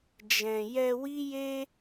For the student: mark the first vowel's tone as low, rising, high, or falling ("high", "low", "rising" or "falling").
low